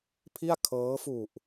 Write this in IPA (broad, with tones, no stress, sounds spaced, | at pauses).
pʰ i˥˩ a̯ kʰ ɤː˦˥ f u˨˩ ʔ